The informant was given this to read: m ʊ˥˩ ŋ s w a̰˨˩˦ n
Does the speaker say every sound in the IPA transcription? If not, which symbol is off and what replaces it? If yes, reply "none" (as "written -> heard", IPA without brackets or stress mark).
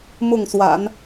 none